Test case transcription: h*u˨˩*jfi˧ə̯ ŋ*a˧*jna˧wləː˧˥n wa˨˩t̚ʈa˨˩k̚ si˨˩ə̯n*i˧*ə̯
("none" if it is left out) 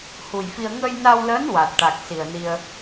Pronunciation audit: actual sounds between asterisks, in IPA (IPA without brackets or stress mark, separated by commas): u˨˩, ə˧, i˧